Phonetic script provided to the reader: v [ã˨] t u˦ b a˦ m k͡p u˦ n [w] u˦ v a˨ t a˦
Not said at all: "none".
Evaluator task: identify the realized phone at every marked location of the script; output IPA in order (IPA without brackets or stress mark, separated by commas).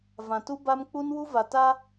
ã˨, w